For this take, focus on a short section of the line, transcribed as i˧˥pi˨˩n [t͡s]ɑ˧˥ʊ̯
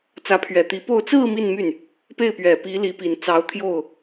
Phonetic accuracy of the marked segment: correct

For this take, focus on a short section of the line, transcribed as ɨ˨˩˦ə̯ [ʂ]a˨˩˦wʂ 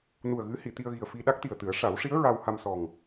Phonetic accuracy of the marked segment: correct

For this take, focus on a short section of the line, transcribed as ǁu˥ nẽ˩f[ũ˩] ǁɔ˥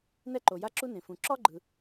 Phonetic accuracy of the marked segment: correct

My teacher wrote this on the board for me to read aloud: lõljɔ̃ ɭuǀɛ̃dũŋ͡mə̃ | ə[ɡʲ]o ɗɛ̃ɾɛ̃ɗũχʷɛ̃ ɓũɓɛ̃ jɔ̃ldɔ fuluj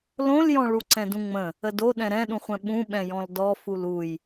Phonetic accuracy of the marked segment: incorrect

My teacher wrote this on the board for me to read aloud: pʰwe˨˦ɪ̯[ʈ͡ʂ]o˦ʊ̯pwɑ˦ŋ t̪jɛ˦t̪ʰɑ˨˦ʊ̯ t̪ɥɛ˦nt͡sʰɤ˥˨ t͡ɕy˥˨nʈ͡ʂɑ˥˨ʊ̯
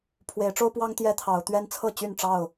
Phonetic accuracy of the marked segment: correct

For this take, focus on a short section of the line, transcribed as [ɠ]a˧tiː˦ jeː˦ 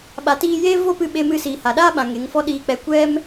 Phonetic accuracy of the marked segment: incorrect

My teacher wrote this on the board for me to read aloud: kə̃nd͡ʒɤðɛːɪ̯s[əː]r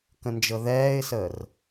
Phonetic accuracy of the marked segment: correct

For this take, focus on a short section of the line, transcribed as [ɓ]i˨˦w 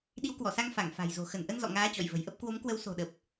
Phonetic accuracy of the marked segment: incorrect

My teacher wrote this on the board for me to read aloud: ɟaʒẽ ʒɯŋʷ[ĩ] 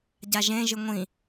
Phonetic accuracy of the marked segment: correct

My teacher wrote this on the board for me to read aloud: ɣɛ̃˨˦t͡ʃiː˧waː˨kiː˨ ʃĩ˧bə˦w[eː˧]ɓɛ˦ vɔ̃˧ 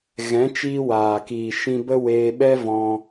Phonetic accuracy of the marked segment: correct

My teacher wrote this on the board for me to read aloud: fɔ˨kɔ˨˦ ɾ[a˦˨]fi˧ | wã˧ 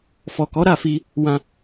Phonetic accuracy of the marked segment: correct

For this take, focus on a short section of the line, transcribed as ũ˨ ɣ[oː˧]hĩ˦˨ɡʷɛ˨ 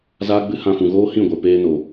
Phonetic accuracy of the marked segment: incorrect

